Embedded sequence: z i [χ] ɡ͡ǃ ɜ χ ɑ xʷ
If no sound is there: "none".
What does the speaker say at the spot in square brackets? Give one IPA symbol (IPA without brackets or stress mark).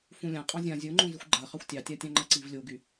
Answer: xʷ